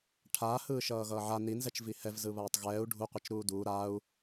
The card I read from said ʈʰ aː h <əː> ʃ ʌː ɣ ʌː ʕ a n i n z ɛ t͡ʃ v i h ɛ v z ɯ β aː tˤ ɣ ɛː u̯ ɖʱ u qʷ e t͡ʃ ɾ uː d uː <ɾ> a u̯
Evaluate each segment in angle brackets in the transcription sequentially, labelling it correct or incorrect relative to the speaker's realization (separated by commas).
incorrect, correct